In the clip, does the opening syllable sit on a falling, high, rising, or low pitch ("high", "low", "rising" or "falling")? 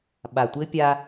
low